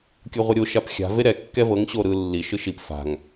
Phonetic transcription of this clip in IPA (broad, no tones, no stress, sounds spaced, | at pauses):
kʲ ɤ ʁʷ ɛ ɾʲ o ʃ a p xʲ a̤ v e ɾ ɛ kː ɛ v ɤ ŋ ɕ o ɾ ɯ lː i ʃ ɯ ʃ i p f a̤ ŋ